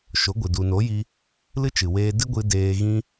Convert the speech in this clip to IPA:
ʃ o˨˦ ɡʷ ɨ˨ d u˨ n o˨˦ j i˧ | l ɨ˦ t͡ʃ ɨ˨ w eː˧ d ɨ˦ ɡʷ ɨ˧ d eː˧ ɣ ĩ˦

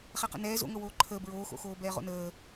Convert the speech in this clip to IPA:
χ ɛ q ə̰ n ɛː z o̰ ŋ ɤ w oː ǃʰ əː b ɹ oː x o̰ x oː b ɛː ʁ o̰ n əː

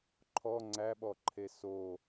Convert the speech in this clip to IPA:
ǃʰ ɔ ŋ͡ǀ æ ɓ ɔ ǃʰ e s o

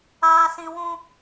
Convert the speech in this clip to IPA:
aː˨ s ĩ˨ w ũ˧

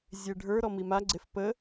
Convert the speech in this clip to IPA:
zʲ e ɖʱ ə˞ ɾ ɔ m i m a ɡ͡ǀ e f p ə

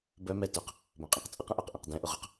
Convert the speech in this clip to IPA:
b œ m ɛ t œ q | b œ̃ qʼ ẽ q t͡sʼ ə q ə̃ ʔ œ q ʔ ẽ q d ɛ̃ ʔ ʊ ʁ ʊ q

